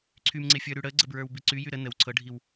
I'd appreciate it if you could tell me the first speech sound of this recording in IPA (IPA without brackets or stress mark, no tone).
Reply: ǀʰ